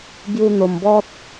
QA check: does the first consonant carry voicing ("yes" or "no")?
yes